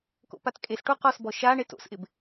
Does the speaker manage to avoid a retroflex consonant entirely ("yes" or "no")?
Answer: no